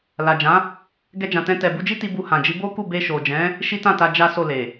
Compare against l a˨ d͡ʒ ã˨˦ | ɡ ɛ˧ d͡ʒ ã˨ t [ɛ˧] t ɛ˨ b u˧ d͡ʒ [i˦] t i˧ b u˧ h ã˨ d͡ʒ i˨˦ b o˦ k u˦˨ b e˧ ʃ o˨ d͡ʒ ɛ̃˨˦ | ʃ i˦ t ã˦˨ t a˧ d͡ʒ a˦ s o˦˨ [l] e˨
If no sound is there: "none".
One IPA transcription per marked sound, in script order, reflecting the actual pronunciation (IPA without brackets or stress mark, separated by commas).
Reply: ɛ̃˧, i˦, l